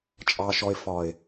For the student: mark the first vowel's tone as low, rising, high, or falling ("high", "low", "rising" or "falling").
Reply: low